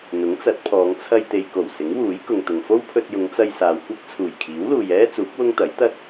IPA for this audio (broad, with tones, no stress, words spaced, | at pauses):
n̪ʊ˨˥ŋt͡sɐ˨˥t̚pʰɔː˨˧ŋ t͡sʰɐ˧jt̪e˨jko˨˩w sɪ˨˥ŋwuː˨˥jkʊ˨ŋt̪ʊ˨ŋ fo˥wpʰɵ˧t̚jʊ˨˧ŋt͡sɐ˧j saː˨wkʷɐ˥k̚ t͡sʰuː˨˩jkʰiː˨˥wluː˨j ɛː˥ t͡suː˨˥k̚ wʊ˥ŋt̪ɐ˨˥j t̪ɐ˥t̚